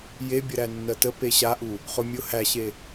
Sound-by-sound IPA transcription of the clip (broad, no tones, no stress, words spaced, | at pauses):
jebʲə ɾænːɜtə peɕaʔu | χʊ mʲʊ hæɕe